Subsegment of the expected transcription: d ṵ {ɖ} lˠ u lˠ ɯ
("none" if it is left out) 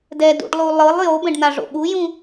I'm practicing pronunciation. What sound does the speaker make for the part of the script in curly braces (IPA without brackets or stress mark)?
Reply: ɖ